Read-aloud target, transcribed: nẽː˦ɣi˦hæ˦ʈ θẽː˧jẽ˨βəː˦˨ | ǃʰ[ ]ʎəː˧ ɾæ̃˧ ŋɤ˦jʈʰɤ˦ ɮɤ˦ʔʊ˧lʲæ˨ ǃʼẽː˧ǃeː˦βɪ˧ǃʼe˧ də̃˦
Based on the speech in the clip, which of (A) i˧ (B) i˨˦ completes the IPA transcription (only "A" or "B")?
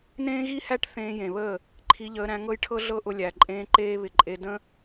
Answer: A